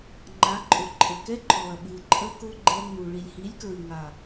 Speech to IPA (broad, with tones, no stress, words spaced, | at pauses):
ŋ͡ǃa˨˦ǃʼʊ˨ ǃʼɘ˨kɛ˦ǃɔ˨ɐ̯ ɓɨ˨ǃʼə˦kʊ˦ ɡ͡ǃɛ˧ŋ͡mu˨ ɭi˨lʲhi˨˦lʲkɹɨ˨ ŋa˨